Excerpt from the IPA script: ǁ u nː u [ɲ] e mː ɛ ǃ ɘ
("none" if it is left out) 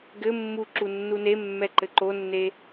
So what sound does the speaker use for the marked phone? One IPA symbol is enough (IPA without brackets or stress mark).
n